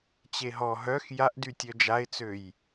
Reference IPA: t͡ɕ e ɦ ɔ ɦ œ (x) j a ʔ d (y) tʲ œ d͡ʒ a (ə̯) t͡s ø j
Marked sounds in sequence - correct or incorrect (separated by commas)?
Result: correct, correct, incorrect